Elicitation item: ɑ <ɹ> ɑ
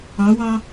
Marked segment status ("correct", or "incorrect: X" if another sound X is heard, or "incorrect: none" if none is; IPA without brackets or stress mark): incorrect: w